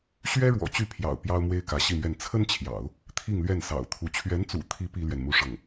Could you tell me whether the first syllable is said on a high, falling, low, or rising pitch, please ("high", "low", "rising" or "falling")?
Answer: high